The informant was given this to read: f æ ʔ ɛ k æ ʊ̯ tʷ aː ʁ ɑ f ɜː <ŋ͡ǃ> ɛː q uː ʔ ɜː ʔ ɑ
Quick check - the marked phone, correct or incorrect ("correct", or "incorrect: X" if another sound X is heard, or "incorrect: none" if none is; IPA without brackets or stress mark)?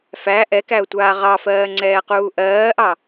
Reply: incorrect: ŋ͡ǀ